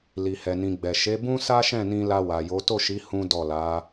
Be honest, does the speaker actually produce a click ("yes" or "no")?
no